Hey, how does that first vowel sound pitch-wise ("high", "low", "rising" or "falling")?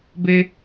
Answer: high